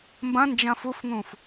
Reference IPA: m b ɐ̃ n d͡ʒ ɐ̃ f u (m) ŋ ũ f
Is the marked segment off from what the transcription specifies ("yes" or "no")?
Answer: yes